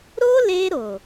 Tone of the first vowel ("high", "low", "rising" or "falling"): high